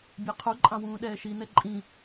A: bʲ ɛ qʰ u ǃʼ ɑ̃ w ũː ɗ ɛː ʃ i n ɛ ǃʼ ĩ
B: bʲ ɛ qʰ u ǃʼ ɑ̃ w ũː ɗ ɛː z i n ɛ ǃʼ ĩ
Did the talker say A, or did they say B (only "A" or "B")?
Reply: A